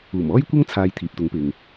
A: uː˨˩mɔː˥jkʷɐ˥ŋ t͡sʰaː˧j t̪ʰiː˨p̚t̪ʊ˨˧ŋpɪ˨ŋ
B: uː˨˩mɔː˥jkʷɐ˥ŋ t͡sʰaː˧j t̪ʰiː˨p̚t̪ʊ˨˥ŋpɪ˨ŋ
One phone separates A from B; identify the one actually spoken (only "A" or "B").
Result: B